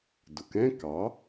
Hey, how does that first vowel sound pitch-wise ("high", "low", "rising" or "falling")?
low